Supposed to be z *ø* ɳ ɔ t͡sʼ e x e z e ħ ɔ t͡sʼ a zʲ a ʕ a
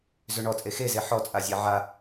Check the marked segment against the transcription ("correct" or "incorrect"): correct